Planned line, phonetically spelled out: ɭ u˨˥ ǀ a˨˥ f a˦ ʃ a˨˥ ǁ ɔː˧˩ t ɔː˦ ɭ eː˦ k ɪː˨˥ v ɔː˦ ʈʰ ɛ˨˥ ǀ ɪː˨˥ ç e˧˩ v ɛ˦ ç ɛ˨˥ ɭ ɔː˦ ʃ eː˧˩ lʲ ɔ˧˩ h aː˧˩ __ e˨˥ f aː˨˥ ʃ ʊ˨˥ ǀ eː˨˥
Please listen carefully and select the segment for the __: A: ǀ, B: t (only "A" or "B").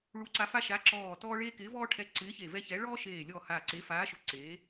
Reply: A